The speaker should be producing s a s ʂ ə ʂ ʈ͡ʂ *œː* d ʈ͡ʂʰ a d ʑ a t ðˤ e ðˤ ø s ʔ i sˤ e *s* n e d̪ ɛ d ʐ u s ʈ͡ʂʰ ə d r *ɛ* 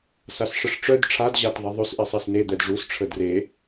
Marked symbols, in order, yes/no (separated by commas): no, yes, no